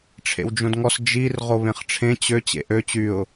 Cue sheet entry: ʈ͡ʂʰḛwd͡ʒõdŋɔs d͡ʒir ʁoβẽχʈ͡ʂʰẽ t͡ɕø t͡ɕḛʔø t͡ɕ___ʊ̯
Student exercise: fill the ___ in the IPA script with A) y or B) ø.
A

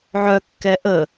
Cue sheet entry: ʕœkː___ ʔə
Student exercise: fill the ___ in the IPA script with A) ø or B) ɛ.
B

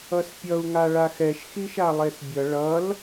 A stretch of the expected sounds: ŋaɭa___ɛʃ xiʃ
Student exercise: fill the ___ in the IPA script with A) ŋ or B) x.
B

